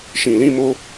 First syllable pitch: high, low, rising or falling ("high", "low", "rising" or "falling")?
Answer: low